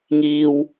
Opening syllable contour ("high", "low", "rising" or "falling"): high